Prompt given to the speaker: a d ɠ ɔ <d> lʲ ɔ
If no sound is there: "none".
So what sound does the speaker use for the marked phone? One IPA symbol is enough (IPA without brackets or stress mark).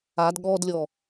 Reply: d